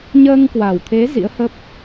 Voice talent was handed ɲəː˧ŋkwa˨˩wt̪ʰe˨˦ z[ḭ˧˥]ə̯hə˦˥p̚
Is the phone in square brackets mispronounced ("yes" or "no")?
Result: no